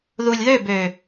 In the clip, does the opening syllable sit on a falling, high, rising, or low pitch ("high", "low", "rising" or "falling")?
low